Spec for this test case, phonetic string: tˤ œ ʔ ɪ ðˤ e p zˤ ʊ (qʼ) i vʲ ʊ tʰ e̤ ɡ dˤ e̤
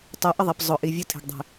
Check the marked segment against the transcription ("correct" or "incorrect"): incorrect